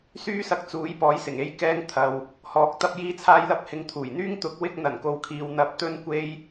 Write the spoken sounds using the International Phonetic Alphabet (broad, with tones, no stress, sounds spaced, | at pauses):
s yː˥ s ɐ˧ k̚ t͡s uː˨˥ j p ɔː˨˥ j s ɪ˨˩ ŋ e˧ j k ɛː˧ ŋ t̪ʰ ɐ˨ w | h ɔː˧ k̚ t̪ ɐ˧ p̚ j iː˧ t͡sʰ aː˧ j l ɐ˧ p̚ h ɪ˨˧ ŋ t̪ʰ uː˨˩ j n̪ yː˥ ŋ t̪ ʊ˨˥ k̚ w ɪ˧ k̚ n̪ ɐ˨˩ n k o˨ w kʰ iː˨ w n̪ ɐ˨˥ p̚ t̪ ɵ˧ n kʷ e˧ j